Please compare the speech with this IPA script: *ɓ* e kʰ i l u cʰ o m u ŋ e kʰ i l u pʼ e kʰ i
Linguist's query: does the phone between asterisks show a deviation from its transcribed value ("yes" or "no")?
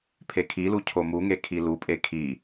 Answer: yes